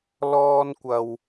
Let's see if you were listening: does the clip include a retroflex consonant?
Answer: no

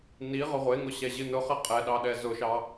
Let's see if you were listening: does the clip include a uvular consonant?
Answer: yes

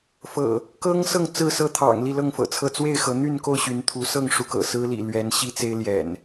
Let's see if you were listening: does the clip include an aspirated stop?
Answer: yes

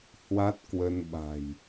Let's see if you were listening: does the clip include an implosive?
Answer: yes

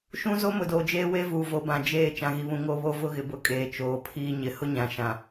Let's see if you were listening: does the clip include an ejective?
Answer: yes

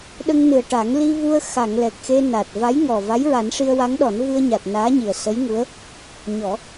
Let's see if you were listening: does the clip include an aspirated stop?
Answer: no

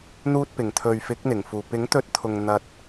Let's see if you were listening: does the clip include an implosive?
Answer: no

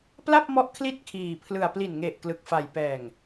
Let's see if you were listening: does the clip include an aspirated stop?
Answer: yes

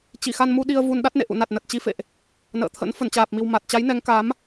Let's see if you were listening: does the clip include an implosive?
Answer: yes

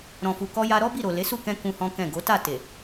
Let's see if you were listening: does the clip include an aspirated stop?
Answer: no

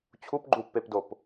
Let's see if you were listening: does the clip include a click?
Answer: yes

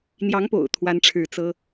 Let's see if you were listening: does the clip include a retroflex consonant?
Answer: yes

